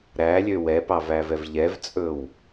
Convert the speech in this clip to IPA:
ɾ æ lʲ ø w ɛ p ɑ v æ v ɛ v ʎ ɛ v t͡sʼ ɵ w

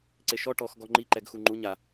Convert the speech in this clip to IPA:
ǀ e ʃ ɔ ʈ ɔ x ɡ ɔ ŋ͡ǃ i ǃ ɛ ɡ x u ŋ͡ǃ u ɲ a

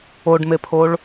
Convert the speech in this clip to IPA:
o ɖ m e pʰ o ɭ

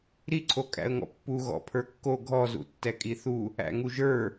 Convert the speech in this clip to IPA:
ɾ i ǀʰ o kʼ æ̰ ə̯ ŋ ɔ̰ pː u ɣ ɔ̰ pʰ ə˞ kː o ɡʱ ɔ z ṵ tː ɛ kʼ i θ u | æ̰ ŋ u ʒ ə˞

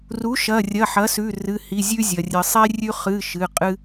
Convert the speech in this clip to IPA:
r u˩˥ ʃ ɐ˩˧˩ rʲ ɐ˩˧˩ ħ ɐ˩˥ s ʉ˩˧˩ r ɨ˩˧˩ h i˩˧˩ zʲ ʉ˦ zʲ ɐ˩ rʲ ɨ˩ sˤ e˦ rʲ ʉ˦ χ ɨ˩˧˩ ʃ ɨ˩˧˩ qʼ ɨ˦

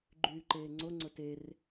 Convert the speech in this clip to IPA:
ɡ͡ǃ yː ǃ eː ŋ͡ǀ o ŋ͡ǀ ʊ t e r

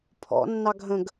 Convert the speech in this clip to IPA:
pʰ ɔ̰ nː ɑ ɡʱ ə̃ ɡ

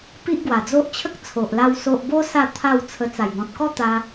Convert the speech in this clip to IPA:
p i˦ ʔ ɡ w a˨˩ d͡z o˦ ʔ t͡ɕʰ ə˦ k̚ t͡sʰ o˨ ʔ l a˧ w s o˨ ʔ b o˧ s a˥˧ t̪ʰ a˥˧ w t͡sʰ ə˧ t͡s a˨˩ j ŋ ɔ̃˨ t̚ k ɔ˦ t̪ a˧

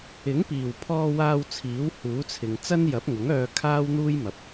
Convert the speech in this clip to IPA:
ɪ˨˥ ŋ p iː˨˩ w pʰ ɔː˧ w aː˧ w t͡sʰ iː˨˥ w h uː˨˥ t͡sʰ ɪ˨ ŋ t͡s ɐ˥ n j ɐ˨˥ p̚ ŋ ʊ˨˥ ŋ œː˧ kʰ aː˥ w n̪ uː˥ j m ɐ˨˥ p̚

